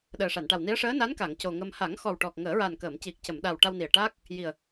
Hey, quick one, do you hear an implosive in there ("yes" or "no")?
yes